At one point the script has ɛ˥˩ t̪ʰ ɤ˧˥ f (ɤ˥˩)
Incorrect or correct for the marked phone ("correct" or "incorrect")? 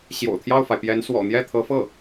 correct